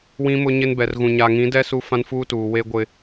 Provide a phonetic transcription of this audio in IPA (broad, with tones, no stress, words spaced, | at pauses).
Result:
wĩ˦mʊ˦ɲɪ˦n bɛ˨rɣũ˨ ɲa˨ŋĩ˨˦dɛ˦ su˦fã˦nfuː˦tuː˨ we˦ɡʷɪ˦